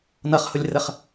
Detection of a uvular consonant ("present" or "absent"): present